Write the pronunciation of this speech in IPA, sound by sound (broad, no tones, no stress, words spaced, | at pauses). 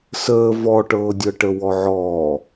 səː vɔʈɤːdʲɤʈə wɔʕɔː